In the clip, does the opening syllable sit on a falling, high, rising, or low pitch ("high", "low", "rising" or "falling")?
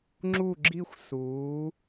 falling